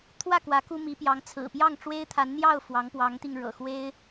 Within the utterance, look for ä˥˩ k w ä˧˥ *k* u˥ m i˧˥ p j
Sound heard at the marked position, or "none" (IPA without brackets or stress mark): k